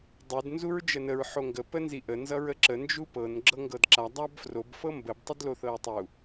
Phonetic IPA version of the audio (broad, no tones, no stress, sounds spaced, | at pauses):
dˤ u d n z u ɹ d͡ʒ ə n ə ɹ ħ o ŋ ɡ ə p ə n z i ʔ ə n z ʌ ɹ ə ǁ ə n d͡ʒ u p ɤ n ɡ͡ǁ ɤ ŋ ɡ ɤ d ǁ a dˤ a b f r o b f ɤ m b ə b tˤ ə d l o θ ɤ ɹ tˤ u